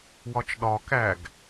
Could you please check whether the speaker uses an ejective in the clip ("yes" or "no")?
no